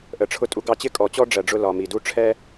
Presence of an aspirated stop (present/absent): present